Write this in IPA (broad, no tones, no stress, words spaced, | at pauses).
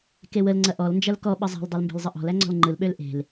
kewəl ŋ͡ǀɐʔɔl nd͡ʒɐlkɔ ɓəzˤe̤l dˤølmbe̤lzˤəʔɔ̤l æŋ͡ǀɔ̤lŋ͡ǃɯl ɓølʔe̤l